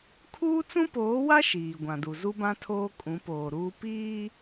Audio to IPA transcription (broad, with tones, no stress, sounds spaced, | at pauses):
kʰ uː˦ t͡s ũ˦ p oː˨˦ w a˦ ʃ iː˨ ɡʷ ã˨ d u˨ z u˦ b ã˦ tʰ oː˦ kʼ ũ˨˦ p oː˨ ɾ uː˦ p iː˦